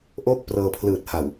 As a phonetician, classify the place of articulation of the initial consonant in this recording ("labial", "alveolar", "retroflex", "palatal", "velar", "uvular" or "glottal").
glottal